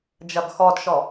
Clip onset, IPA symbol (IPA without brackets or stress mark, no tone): d͡ʒ